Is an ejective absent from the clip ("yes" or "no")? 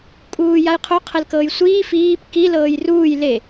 no